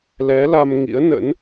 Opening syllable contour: rising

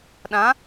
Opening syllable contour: rising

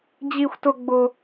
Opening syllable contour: high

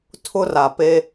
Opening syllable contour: high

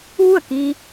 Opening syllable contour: falling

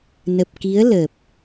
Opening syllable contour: low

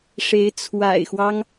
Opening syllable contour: rising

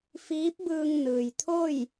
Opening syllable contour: rising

